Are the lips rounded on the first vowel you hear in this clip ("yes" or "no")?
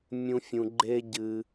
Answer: yes